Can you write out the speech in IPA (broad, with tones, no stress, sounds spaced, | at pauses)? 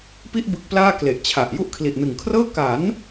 p i˥˩ ʔ b ɯ˦˥ k̚ p l aː˥˩ k l e˨˩ ʔ t͡ɕʰ a˨˩ ʔ j u˦˥ ʔ kʰ l i˨˩ ʔ n ɯ˨˩ ŋ kʰ r ɤː˥˩ k a˩˦ n